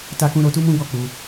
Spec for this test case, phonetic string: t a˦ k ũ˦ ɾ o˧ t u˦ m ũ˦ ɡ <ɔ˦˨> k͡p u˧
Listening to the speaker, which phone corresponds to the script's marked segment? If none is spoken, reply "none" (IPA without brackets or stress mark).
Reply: ɔ˦˨